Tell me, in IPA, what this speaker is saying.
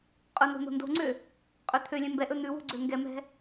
qʼ ɵ n̪ o̤ n̪ o̤ n d o̤ ŋ͡ǀ ø | qʼ ø t̪ʰ ø lʲ ɛ̃ m b ɛ ʔ ɵ n̪ ʉ w o̤ ɡ͡ǀ ø ŋ ɡ ɛ m ɛ̤

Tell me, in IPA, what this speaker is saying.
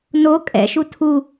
n o kʼ ɛ̰ ʃ u tʰ u

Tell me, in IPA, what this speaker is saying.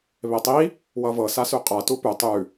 β e tˤ i | w ʌ v ɤ s a s ʉ qʼ a t u p ʉ tˤ ʉ

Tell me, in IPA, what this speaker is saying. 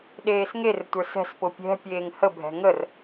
ɗ eː s ŋ e r tʷ ə˞ s ɛ̤ s p ʊ pʲ ɛ̤ pʲ eː ŋ h ə bʱ ɛ̤ ŋ ə r

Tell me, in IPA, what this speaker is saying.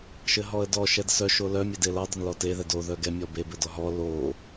ʃ ɘ ɦ ɔ ə̯ d ɔ ʃ ɛ d s œ ʃ o l œ mʲ ɛ d e l ɔ dˤ ɘ n l ɔ t e ð ɛ d o ð œ ɡ ɛ mʲ ɔ b e b ɘ d ɔ ɦ ɔ l o

